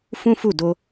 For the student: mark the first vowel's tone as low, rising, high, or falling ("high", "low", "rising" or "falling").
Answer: high